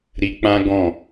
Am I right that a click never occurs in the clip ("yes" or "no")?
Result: yes